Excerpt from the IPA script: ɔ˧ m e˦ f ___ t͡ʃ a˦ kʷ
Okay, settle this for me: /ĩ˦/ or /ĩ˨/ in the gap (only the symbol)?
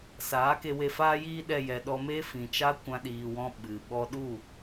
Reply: ĩ˨